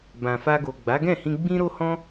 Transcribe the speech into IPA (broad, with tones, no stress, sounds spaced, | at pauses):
b ã˨ f a˧ ɡ o˨ ɡ͡b a˨˦ ɡ ɛ̃˦˨ h ĩ˧ ɡ͡b ĩ˧ ɾ o˧ h ɔ̃˧